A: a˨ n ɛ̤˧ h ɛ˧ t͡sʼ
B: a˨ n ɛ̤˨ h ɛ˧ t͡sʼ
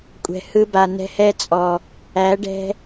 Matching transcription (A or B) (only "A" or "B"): A